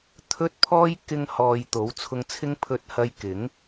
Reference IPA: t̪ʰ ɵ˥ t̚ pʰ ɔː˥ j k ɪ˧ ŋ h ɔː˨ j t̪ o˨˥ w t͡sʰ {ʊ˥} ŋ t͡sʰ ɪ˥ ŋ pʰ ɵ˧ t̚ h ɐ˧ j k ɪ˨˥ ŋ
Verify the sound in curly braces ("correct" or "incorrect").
incorrect